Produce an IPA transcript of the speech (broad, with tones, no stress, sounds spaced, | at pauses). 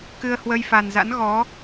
k ɨ˧ ə̯ h w ə˧ j f a˨˩ n z a̰˧˥ n ɣ ɔ˨˦